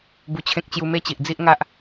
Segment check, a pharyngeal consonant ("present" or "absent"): absent